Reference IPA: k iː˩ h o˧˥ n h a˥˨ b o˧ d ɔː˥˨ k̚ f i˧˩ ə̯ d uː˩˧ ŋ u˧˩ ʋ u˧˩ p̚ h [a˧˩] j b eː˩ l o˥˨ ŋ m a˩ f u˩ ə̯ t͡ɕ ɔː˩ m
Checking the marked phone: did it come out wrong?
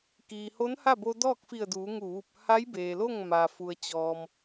yes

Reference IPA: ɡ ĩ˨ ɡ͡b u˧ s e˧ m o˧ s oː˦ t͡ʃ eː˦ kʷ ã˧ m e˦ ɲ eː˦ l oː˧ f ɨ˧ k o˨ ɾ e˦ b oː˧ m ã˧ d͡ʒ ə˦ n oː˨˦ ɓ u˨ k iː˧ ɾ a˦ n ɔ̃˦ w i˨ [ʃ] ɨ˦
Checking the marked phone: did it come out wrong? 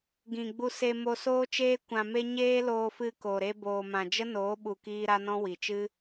yes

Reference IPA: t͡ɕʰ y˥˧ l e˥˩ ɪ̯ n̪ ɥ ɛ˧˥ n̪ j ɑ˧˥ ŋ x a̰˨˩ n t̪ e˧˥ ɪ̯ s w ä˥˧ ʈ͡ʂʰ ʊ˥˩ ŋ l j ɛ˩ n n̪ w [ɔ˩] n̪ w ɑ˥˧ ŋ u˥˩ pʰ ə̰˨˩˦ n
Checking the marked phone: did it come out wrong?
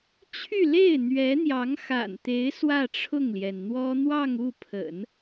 yes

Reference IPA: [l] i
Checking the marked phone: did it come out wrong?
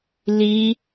no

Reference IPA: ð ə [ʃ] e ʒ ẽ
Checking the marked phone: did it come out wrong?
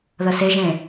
yes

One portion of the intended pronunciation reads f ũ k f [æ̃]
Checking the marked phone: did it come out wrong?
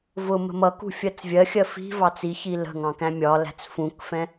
yes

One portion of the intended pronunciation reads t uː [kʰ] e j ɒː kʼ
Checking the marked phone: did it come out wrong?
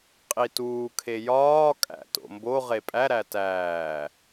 no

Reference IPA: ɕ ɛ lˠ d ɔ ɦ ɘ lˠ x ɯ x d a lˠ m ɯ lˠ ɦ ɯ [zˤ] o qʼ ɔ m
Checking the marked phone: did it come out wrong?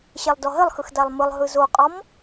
yes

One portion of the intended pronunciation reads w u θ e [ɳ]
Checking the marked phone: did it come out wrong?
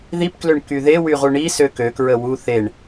no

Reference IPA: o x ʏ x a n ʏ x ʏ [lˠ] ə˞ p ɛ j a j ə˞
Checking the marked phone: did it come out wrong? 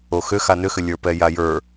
yes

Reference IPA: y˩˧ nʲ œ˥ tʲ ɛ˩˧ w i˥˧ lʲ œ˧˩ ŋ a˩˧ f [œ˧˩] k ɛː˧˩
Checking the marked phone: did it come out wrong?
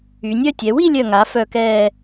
no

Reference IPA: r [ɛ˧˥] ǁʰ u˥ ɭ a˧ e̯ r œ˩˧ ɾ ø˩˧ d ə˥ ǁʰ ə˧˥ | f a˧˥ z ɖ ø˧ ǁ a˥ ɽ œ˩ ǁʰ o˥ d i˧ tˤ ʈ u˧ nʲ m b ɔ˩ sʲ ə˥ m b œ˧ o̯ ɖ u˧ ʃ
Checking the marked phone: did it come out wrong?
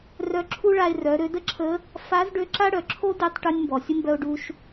yes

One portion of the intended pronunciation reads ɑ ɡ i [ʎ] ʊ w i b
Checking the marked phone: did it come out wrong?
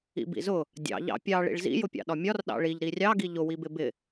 no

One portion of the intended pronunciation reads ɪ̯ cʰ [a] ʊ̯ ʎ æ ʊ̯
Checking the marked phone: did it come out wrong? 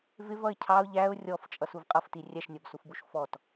yes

